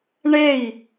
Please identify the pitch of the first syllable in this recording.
falling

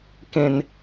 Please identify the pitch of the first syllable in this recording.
high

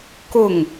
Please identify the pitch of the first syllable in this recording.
falling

